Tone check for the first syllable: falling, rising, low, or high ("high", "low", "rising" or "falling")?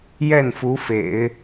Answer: falling